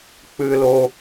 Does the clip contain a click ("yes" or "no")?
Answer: no